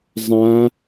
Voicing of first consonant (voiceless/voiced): voiced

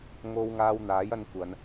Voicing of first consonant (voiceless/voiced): voiced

